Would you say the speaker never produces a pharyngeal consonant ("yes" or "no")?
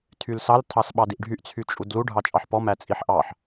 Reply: no